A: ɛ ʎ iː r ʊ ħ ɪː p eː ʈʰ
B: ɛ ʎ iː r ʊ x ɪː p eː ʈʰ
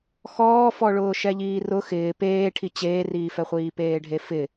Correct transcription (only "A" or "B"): B